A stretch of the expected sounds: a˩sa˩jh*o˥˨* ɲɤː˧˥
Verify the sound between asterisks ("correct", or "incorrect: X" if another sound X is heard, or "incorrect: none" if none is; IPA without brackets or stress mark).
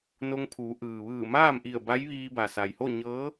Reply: correct